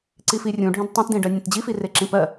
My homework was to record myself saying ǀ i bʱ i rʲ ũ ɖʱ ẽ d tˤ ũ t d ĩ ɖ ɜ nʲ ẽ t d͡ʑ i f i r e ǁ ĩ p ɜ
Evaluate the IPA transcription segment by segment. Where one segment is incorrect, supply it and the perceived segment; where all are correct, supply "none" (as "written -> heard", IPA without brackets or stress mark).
bʱ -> f